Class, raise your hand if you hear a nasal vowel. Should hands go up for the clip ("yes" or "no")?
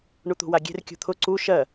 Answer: no